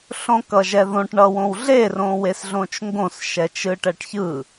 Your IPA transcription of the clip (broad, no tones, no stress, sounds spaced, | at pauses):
ɬ õ k ʌ ʒ ɛ ð õ ʈ ɳ ʌ w õ w ɮ e r õ w e s ɮ õ t͡ʃ ŋ ɡ õ s ʃ ɛ t͡ʃ ɯ ʈ ɛ ʈ ç ɯ